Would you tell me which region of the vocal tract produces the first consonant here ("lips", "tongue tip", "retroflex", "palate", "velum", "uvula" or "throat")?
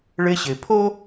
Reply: retroflex